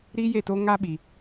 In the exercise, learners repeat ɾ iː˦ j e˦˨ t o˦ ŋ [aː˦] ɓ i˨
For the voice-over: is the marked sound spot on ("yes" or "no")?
no